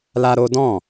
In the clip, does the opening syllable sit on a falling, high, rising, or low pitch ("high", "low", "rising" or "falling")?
high